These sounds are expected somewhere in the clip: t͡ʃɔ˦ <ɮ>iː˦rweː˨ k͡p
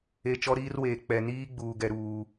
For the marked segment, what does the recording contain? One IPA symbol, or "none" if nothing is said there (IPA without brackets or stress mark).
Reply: ɾ